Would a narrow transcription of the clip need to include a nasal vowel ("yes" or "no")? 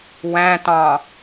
yes